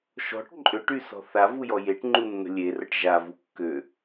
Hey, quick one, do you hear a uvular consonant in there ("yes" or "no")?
no